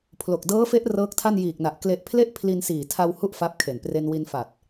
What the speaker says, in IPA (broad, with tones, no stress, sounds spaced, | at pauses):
pʰ l o˨˩ k̚ d ɤː˦˥ f e˦˥ ʔ r ɤː˦˥ k̚ tʰ a˥˩ n j iː˨˩ k̚ n a˨˩ ʔ k l e˨˩ ʔ pʰ l e˦˥ ʔ pʰ l i˧ n s iː˨˩ tʰ a˧ w h u˥˩ ʔ f a˦˥ p̚ kʰ e˨˩ n p r e˧ n w i˧ n f a˨˩ t̚